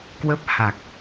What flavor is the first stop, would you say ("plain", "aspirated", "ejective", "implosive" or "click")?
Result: plain